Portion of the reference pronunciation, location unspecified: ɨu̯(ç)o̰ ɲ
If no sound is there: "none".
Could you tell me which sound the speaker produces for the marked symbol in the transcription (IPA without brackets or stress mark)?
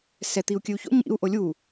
ç